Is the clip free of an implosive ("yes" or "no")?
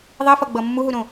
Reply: yes